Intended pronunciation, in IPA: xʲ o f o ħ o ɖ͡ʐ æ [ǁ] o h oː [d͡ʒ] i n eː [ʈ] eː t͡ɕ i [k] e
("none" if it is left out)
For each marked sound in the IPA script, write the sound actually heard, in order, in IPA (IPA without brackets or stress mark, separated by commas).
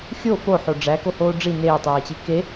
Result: k, ɖ͡ʐ, tˤ, k